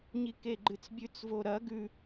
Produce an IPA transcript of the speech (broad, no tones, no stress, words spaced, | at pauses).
ɲikeɡ͡ǃɨt͡sbʲʉt͡s voɾɐ ɡʉ